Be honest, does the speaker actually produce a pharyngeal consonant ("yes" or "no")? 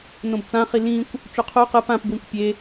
no